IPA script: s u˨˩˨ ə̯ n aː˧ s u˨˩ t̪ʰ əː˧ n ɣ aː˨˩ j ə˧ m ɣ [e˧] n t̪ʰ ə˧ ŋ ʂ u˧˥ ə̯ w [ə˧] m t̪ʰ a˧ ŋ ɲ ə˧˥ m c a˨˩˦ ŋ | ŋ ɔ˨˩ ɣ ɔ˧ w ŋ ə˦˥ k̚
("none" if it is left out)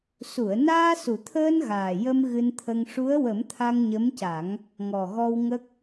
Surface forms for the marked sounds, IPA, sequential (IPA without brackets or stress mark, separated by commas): ɨ˧, ə˨˩˦